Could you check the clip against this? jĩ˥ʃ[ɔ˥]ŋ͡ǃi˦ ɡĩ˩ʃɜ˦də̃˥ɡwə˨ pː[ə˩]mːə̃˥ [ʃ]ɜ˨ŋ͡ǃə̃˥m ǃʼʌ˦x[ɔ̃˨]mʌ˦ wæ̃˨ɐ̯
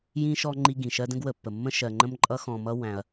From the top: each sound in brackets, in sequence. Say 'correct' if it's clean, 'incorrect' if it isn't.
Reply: correct, correct, correct, correct

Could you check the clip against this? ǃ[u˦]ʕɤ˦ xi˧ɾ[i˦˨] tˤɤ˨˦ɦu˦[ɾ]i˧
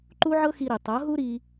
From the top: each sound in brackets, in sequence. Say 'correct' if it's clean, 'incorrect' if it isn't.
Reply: correct, incorrect: i˨, correct

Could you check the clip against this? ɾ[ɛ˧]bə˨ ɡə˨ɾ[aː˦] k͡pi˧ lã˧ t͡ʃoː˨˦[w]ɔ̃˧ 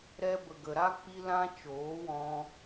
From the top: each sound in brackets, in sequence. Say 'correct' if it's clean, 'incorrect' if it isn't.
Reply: correct, incorrect: a˦, correct

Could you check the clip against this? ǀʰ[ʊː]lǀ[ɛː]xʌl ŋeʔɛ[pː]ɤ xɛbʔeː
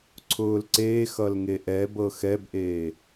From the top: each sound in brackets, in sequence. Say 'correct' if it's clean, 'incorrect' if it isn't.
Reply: correct, incorrect: eː, incorrect: b

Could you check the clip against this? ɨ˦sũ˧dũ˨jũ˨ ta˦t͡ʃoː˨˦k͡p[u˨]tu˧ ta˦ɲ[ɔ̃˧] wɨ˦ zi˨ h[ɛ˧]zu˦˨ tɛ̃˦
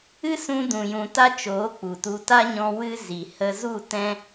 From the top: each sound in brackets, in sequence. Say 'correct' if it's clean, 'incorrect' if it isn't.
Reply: correct, correct, incorrect: ə˧

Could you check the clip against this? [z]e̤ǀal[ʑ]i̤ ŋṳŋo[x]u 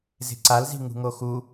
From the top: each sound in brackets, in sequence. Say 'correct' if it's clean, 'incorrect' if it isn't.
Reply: correct, incorrect: z, correct

